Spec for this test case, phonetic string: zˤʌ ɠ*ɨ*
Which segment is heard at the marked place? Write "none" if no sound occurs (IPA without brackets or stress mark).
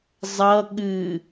ɨ